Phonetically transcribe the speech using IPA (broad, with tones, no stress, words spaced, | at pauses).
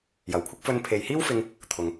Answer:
jɐ˨˩wkʷʰɪ˥k̚fɵ˧n pʰe˨jhiː˥wfɪ˧ŋ | t̪ʰʊ˨ŋ